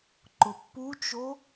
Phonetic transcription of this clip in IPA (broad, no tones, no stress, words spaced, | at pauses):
ǃʊpːut͡ʃo